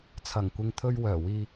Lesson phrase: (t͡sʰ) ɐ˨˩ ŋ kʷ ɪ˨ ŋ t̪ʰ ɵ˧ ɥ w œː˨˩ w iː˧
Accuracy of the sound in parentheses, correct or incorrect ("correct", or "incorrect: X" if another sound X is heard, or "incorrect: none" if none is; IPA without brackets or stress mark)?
correct